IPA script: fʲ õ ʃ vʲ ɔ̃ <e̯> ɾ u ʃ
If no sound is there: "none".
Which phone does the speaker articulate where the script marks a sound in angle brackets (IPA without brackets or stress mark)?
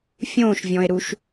e̯